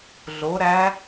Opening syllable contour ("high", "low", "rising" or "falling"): rising